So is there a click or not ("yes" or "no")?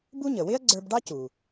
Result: yes